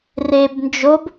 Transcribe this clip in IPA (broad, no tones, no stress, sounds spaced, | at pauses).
r e b n d͡ʒ o b